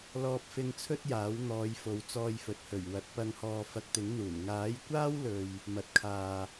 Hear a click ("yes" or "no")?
no